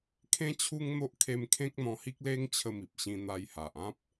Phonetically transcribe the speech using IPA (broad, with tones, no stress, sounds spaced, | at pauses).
kʰ ẽ˦ t͡ɕʰ u˦ ŋ n̪ o˦ ʔ kʰ e˧ m kʰ ẽ˦ k̚ n̪ ɔ̃˧ h i˦ k̚ l e˦ ŋ t͡ɕʰ ə˧ m i˨ p̚ ɕ ĩ˧ n̪ a˧ j h a˨ ʔ ã˦ p̚